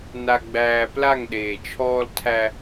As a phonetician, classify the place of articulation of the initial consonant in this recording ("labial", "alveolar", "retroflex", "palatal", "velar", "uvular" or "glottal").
alveolar